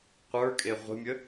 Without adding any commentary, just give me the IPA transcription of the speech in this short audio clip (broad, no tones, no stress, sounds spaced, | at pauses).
qʷ ə˞ kʼ e ʁʷ ə̤ mʲ ə